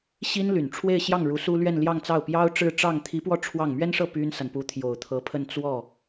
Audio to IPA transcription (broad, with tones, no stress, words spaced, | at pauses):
ɕi˥nly˨˩n ʈ͡ʂʰwe˥˧ɪ̯ɕjɑ˥˩ŋ ɻu˧˥su˥ lɥɛ˥˧n ljɑ˥˧ŋt͡sɑ˥˩ʊ̯ pjɑ˥ʊ̯ʈ͡ʂɻ̩˥˧ʈ͡ʂɑ˥˩ŋ t̪ʰi˧˥pwɔ˥˧ ʈ͡ʂʰwɑ˥˩ŋ mɥɛ˥nʂɤ˥˩ py˥nsa˨n pu˧˥t̪ʰjo˨˩ʊ̯t̪ʰɤ˧˥pʰə˥˧n t͡swɔ˥˩